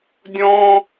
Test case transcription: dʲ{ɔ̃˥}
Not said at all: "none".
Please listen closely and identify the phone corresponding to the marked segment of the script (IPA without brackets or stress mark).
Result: ɔ̃˥